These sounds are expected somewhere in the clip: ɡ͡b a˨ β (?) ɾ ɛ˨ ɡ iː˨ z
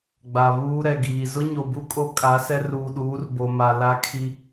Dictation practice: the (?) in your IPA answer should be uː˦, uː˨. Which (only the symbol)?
uː˦